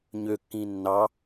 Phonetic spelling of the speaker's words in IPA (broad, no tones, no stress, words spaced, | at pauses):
ɲøkːĩ nːɑ